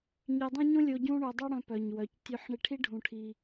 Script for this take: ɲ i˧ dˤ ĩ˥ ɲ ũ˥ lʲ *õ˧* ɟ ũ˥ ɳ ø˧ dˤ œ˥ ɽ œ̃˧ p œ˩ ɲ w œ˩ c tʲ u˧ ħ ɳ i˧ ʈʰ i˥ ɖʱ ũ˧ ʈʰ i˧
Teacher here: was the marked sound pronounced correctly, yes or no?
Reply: no